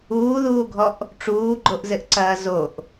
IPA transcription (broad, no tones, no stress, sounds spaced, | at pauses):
uː ð uː ɡʱ ɔ ʔ | ʈ͡ʂ uː ɡ͡ǃ o ʔ z ɘ ʔ ǀ ɐː z o ʔ